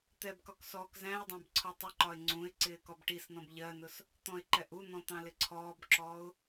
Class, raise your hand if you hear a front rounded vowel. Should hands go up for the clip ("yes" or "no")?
no